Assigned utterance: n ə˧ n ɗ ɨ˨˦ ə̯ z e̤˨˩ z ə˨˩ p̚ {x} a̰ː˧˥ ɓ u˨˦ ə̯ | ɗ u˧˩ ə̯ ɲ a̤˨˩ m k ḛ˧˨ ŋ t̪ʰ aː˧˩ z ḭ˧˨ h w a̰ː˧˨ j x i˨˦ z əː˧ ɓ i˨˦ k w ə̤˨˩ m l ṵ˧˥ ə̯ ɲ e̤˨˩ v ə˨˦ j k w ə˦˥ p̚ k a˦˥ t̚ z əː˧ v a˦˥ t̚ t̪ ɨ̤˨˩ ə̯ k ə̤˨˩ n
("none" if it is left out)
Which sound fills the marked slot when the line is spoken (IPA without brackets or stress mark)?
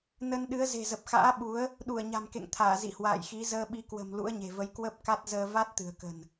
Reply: x